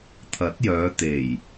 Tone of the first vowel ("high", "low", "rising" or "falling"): rising